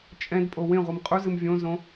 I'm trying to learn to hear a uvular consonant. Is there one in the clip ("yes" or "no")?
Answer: yes